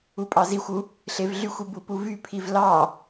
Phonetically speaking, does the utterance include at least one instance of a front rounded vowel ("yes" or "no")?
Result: yes